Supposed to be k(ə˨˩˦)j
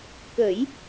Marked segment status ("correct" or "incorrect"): correct